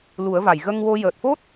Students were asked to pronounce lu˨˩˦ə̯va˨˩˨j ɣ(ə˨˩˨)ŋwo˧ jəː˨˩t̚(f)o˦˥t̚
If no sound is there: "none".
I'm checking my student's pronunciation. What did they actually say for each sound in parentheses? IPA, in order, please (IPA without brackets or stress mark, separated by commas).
ə˧, f